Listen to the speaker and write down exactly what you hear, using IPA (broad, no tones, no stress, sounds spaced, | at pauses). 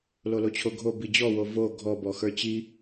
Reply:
l o l o t͡ɕʰ o ɡʱ o b i d͡ʑ ɔ w o v o ɡʱ ɔ b ɔ x ə˞ t͡ɕ i